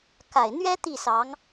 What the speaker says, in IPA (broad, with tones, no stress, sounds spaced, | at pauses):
k a˨˩ ɪ̯ n̪ ɥ ɛ˥ t̪ i˥˩ s ɑ˧˥ ŋ